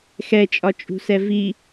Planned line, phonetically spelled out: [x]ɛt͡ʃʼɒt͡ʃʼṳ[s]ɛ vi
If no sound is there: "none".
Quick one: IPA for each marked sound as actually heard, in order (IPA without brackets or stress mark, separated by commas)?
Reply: x, s